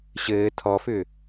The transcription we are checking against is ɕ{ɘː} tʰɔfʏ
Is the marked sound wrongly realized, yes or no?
no